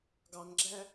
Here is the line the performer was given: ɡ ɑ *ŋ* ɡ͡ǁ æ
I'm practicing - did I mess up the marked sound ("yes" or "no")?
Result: no